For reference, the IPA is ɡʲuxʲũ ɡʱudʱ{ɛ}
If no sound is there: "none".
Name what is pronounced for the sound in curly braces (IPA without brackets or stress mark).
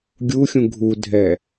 ɛ